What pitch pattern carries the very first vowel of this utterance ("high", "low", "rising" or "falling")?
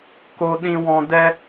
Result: high